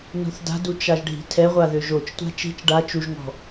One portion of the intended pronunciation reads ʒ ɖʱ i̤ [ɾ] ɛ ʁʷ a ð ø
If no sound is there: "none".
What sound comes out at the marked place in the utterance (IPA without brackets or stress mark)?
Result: tʰ